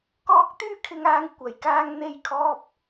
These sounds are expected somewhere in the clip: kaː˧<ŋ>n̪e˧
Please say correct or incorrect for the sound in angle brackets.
correct